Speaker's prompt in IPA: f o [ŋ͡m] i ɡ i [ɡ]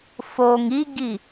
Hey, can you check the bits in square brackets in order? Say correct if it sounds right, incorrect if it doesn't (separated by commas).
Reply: incorrect, incorrect